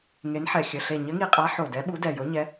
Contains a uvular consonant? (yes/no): yes